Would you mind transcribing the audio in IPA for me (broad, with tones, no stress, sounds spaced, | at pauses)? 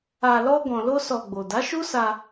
a˧ l ɔ˦ ɡ ɔ̃˧ l o˦ s ɔ˧ ɡ͡b o˨ d a˨˦ ʃ u˦ s a˧